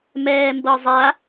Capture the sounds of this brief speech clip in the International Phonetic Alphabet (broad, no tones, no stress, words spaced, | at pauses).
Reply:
mɛːmbɤzˤa